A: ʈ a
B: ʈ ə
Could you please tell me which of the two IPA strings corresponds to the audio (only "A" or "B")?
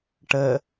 B